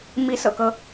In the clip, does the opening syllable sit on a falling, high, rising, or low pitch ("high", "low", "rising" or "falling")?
rising